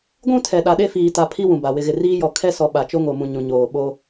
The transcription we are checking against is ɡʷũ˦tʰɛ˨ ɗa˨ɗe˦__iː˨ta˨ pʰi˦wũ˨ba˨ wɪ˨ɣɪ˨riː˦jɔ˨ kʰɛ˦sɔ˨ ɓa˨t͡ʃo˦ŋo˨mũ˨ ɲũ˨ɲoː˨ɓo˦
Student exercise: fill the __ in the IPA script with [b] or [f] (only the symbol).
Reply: f